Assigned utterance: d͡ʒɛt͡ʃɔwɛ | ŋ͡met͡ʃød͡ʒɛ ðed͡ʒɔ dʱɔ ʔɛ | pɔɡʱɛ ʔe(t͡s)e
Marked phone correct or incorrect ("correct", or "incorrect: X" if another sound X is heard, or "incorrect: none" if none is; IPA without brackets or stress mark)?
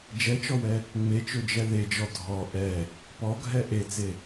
correct